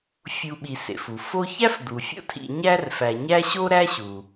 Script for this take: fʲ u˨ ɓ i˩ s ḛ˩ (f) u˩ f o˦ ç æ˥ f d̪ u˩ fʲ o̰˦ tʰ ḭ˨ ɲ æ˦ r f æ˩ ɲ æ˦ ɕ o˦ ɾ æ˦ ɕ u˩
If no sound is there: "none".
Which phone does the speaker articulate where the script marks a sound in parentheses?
f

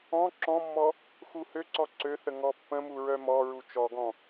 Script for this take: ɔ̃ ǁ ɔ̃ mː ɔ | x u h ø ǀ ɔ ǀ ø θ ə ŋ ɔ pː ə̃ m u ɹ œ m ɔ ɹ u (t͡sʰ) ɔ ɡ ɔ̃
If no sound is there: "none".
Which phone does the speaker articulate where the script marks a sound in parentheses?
t͡ʃ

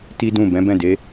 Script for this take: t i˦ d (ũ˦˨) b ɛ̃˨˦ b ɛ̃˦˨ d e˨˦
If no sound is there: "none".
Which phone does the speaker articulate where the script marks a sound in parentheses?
ũ˦˨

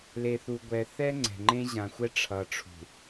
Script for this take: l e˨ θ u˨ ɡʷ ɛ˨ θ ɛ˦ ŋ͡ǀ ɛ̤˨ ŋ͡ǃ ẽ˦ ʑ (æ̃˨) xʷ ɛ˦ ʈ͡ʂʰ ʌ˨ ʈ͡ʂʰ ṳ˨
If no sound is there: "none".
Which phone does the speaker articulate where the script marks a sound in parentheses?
ã˨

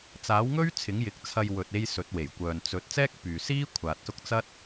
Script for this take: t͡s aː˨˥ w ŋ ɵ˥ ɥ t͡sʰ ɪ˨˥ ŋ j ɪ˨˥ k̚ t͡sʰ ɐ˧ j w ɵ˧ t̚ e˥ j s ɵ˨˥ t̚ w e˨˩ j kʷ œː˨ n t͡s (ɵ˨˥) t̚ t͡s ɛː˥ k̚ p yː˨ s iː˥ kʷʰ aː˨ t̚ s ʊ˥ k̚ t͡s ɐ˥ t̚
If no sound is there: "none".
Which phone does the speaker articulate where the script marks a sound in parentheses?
ɵ˨˥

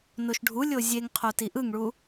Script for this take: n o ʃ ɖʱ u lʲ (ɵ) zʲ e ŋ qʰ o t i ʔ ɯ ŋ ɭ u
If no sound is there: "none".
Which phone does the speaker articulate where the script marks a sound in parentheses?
o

